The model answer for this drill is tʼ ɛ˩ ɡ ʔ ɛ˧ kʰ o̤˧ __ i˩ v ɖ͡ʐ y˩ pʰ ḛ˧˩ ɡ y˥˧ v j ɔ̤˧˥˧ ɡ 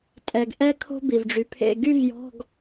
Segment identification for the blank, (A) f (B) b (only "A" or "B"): B